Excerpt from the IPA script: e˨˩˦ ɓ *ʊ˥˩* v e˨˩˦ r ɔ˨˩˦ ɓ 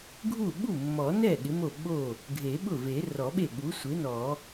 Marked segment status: correct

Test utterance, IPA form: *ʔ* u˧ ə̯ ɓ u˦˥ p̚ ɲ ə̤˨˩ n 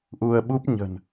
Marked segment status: correct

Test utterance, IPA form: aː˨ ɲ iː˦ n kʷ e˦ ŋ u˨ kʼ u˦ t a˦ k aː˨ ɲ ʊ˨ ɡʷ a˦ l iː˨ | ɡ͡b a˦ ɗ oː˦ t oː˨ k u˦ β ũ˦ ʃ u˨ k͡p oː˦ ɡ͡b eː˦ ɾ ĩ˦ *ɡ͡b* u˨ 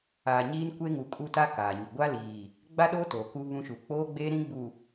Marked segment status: correct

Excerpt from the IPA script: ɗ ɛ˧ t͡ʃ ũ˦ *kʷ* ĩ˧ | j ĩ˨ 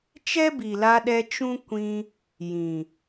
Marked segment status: correct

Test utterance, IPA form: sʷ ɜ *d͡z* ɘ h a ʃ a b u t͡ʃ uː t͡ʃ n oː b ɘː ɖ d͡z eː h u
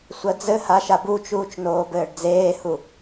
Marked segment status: correct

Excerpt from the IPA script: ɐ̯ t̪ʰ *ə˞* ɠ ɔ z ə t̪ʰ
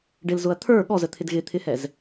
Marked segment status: correct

